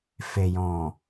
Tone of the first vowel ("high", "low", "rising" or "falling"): low